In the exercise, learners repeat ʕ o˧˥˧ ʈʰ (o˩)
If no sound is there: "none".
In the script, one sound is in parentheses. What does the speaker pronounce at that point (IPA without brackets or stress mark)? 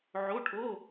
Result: o˧˥˧